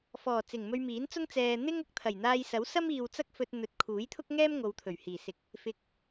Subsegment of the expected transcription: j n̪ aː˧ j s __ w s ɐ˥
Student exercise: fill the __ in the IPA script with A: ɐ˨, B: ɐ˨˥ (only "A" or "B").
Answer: B